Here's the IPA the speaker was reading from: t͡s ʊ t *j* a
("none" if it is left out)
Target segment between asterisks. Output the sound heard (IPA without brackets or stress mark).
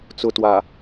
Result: w